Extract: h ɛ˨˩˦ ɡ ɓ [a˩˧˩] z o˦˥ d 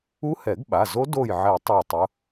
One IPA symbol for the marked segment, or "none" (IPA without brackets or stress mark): a˩˧˩